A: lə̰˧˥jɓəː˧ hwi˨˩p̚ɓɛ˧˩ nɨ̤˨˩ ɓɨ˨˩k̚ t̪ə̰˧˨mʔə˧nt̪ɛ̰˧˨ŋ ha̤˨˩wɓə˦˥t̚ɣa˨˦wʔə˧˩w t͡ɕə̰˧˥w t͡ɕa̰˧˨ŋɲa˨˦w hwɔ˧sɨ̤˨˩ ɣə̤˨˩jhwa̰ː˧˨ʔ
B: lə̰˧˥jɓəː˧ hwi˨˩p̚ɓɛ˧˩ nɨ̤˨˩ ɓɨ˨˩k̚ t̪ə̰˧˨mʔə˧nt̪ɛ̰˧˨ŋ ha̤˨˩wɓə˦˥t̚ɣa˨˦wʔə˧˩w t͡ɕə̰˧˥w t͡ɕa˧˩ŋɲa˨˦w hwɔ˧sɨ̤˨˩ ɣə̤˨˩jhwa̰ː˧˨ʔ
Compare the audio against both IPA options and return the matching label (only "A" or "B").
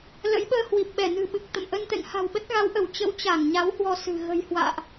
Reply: B